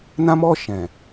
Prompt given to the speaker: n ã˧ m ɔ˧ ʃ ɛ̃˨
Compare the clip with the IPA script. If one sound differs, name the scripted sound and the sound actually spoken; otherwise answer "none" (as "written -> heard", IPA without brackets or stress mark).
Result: none